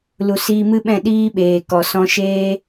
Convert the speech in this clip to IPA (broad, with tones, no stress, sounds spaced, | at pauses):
l u˨ s iː˧ m ɨ˦ ɓ ɛ̃˦˨ ɗ iː˦ ɓ eː˨ k ɔ˨ s ɔ̃˧ ʃ eː˦